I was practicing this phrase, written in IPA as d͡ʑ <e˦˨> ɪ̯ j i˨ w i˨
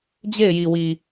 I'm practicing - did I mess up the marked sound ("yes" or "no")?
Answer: no